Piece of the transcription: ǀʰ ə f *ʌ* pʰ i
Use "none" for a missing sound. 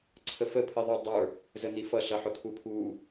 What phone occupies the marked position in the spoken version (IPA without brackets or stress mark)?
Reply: ə